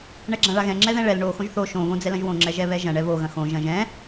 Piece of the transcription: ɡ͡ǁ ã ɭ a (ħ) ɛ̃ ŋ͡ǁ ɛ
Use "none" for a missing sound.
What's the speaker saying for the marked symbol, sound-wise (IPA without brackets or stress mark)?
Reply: ɣ